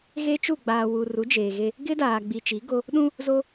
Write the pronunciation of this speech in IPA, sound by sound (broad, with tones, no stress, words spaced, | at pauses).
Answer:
ɣe˦t͡ʃu˦˨ɡ͡baː˨ wu˨ ru˨˦d͡ʒeː˨ ɣe˦ | ɡɪ˦daː˨ ɡ͡bi˨t͡ʃi˨˦ɡo˦ | ɗũ˦ | zo˦